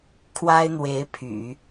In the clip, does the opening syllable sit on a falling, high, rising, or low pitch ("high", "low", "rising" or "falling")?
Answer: high